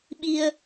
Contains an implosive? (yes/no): yes